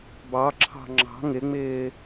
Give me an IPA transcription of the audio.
b ɑ ǁʰ ɑ̤ ŋ͡ǁ ɑ̤ ŋ ɪ ŋ͡m ɪː

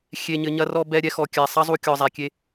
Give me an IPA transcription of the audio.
xʲ e˨ ɲ ɘ˨ ɲ ɐ˧ r ɔ˧ b ɛ˧ ɾʲ ɛ˧ x ɔ˨ kʲ æ˨ sˤ ɐ˦ zˤ u˧ kʲ ɔ˨ zˤ æ˨ kʲ e˧

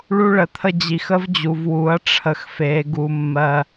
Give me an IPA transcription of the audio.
ɭ u˦ ɭ ə˨ t̪ʰ ə˦ d͡ʑ i˨ x ə˦ v d͡ʑ u˨ v w u˨˦ ɐ̯ ʈ͡ʂʰ ə˨ x f e˨˦ ɡ u˦ mː ɜ˦

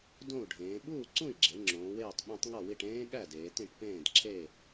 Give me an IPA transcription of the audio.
d õ˥˨ u̯ ɖʱ ẽː˩˧ ɓ uː˥˨ ǀ ũ˥˨ i̯ ɡ͡ǁ e˩˧ ŋ͡ǁ õː˩˧ w eː˥˨ tˤ ɓ ẽ˦˥ tˤ ŋ ɒ˥˨ w i˥˨ ʈ ẽː˦˥ ɠ æ˥˨ d eː˩˧ t ĩ˥˨ ʈ p ẽː˥˨ d ǁʰ e˥˨

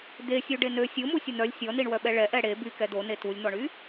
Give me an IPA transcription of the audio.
d̪ e sʲ u ɖ e n ø sʲ o m u sʲ ə n̪ œ lʲ sʲ ɔ n i ɳ w œ ɓ ɛ ɭ ɛ ʔ ɛ ɽ e b y k ɛ d̪ o n e t u lʲ n̪ ɔ ɳ y

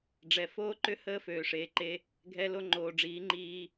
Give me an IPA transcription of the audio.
ɖ͡ʐ ɛ˨ f oː˦ ǃ ʏ˦ h əː˦ f øː˨ ʂ eː˨ ǃ e˦ | ɡʱ ɛ˦ l o˦ ŋ͡ǃ oː˨ ɖ͡ʐ iː˨˦ ŋ͡ǃ iː˦

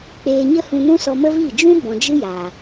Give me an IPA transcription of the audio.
k͡p eː˧ ɲ ə˦ h ũ˧ n ũ˦ s ɔ˧ m ə˦ v i˦˨ d͡ʒ ũ˦ b ɔ̃˨ d͡ʒ ɨ˦ j aː˨

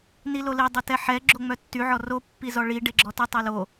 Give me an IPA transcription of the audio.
n i l o l i dˤ o t ɛ ħ ɛ ɡ͡ǁ o ŋ͡m œ tː y ʕ ɔ r o pː i z ɔ ɭ i ɖ e ɡ͡ǁ ɔ t y tˤ o l o

